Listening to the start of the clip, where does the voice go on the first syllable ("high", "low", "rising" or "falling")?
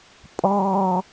high